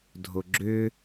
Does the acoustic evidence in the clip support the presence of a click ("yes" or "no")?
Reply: yes